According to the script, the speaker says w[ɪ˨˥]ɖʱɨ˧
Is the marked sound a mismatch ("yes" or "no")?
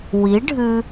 yes